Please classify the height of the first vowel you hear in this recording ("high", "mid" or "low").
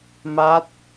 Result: low